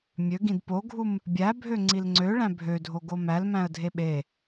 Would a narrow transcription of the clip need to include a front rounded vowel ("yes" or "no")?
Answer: yes